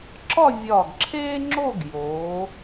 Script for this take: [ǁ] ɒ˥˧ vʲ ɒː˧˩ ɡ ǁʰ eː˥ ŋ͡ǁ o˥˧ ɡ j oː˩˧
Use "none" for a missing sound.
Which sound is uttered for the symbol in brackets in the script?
ǁ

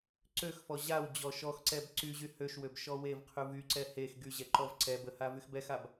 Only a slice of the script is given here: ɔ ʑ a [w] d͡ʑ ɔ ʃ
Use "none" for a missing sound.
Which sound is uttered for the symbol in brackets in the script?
w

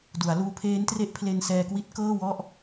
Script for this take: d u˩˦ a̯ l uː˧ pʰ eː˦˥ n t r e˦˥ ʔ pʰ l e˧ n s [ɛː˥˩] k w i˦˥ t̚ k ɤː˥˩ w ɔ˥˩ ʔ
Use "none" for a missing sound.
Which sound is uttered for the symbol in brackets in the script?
ɛː˧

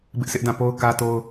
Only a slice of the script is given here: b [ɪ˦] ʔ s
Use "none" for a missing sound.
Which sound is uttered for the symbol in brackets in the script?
ɪ˦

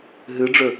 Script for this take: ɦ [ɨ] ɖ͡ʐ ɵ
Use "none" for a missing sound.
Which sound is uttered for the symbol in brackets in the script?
ɨ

